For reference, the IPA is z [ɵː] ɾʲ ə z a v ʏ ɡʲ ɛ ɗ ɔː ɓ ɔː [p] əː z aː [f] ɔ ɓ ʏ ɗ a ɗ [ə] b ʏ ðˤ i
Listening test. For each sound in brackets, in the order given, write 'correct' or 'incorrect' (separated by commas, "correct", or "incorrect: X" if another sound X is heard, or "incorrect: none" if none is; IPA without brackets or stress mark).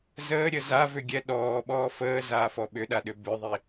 incorrect: əː, incorrect: f, correct, incorrect: ʏ